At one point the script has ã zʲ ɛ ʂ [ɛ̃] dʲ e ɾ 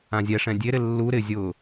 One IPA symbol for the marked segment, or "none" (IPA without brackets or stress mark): ɛ̃